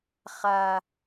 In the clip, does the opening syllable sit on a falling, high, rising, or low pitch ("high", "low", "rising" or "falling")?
high